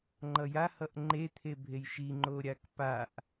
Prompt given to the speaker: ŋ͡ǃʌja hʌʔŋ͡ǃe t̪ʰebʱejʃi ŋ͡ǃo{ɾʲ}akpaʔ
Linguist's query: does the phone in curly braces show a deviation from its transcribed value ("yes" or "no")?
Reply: no